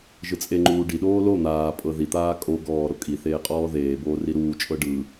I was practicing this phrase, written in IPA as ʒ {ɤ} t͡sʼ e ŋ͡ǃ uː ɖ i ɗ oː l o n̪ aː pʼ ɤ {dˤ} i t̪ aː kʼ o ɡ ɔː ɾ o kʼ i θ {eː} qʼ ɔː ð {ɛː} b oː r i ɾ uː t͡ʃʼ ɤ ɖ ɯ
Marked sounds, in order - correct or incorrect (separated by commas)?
incorrect, incorrect, correct, incorrect